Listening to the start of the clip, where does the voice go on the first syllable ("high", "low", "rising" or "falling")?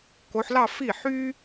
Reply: rising